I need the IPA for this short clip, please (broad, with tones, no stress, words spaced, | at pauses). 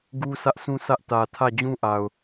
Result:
ɡu˦ sä˦ʔsʰũ˦ sä˦ʔ tä˨tʰä˦˨ d͡ʑũ˦ʔa˨ʊ̯